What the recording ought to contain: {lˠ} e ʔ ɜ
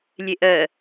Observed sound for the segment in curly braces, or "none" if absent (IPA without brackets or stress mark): lʲ